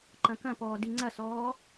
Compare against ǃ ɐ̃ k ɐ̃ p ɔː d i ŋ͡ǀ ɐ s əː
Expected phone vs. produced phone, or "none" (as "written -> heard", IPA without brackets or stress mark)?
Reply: əː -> ɔː